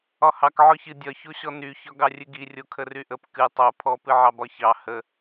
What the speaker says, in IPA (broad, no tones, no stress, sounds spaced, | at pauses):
ɒ h ɑ k ʕ ɔ ç ɨ dʲ ɒ ç o ɕ ɔ n y ç ɒ ɡ ɑ rʲ ɨ ɡ i rʲ o kʰ ə r y ʔ ə p k ɨ tˤ o pʰ ɔ p ɨ ʕ ɑ b ɒ ç ɑ h ə